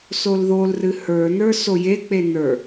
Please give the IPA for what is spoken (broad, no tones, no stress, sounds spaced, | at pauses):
s o l ð o l r ɨ h ə˞ n ə˞ s o j e k͡p e n ə˞